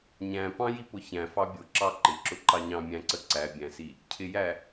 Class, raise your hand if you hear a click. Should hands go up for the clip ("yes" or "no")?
yes